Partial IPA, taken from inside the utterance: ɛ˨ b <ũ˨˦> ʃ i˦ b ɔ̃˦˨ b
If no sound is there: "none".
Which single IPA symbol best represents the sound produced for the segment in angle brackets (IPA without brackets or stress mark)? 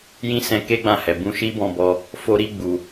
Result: ũ˧